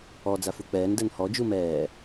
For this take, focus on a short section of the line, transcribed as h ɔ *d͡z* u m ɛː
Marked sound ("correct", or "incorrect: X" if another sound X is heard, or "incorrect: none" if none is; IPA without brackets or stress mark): incorrect: d͡ʒ